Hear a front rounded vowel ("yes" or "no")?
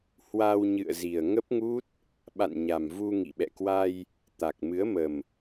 no